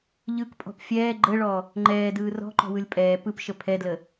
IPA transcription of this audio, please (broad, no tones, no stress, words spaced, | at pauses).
ʎɯkpʼɔ̤p fʲɛː ɡ͡ǃəɭɔ | ŋ͡ǃɛːdɯː rɔ̤ǃɔ̤wɯlʲ pʼɛː pɯpʃə pʰɛdlə